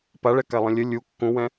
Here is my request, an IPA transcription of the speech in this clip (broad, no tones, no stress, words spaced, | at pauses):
paɭɛkalˠə̃ lʲə lʲu kːũwɛ̃